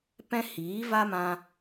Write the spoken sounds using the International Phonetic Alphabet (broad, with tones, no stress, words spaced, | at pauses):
pɛ̃˦hiː˨˦va˦mã˧